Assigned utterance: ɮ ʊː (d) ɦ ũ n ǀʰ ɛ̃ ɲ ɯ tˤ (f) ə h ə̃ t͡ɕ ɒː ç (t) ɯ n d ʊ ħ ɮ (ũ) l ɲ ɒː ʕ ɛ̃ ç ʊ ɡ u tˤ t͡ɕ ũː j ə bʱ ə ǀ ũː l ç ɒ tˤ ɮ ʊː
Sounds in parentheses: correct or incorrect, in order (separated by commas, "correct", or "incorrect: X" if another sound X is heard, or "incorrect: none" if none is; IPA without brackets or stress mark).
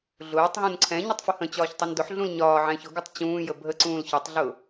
incorrect: tˤ, correct, incorrect: tˤ, correct